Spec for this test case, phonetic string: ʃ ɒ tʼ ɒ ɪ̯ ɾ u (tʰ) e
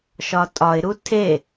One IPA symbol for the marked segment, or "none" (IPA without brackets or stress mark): tʰ